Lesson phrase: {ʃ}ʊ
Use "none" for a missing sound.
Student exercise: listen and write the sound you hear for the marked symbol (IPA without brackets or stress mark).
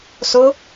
s